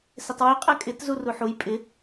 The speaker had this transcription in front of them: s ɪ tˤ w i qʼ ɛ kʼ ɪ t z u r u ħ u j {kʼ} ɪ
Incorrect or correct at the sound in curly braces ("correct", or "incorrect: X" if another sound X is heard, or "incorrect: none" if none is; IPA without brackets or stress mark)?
incorrect: pʼ